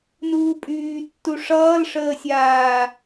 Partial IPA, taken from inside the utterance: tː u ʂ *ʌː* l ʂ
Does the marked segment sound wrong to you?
no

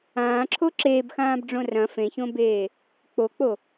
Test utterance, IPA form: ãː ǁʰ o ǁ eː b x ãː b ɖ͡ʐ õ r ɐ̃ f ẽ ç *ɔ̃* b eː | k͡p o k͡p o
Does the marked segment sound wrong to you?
yes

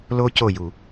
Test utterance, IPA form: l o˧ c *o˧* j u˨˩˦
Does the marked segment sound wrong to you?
yes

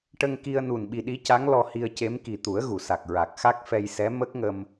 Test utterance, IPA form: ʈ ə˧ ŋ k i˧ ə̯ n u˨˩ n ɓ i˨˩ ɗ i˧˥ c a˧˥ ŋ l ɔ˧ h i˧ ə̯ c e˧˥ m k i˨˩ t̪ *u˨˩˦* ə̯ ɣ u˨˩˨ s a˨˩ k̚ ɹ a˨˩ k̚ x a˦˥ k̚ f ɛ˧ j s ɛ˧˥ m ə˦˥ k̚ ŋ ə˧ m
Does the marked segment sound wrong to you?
no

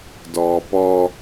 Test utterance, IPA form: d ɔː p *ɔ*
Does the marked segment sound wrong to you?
no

